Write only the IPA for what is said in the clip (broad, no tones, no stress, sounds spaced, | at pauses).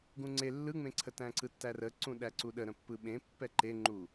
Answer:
ɡ ũ ŋ͡ǀ e lː ɯ ŋ͡m ẽ ǀʰ ə t æ̃ ǀ ɯ tː æ r ə ǀ ũ ɗ æ ǀ u ɗ ə ɾ ə̃ pː ɯ ɓ ẽ pː ɛ ǃ e ŋ͡ǃ u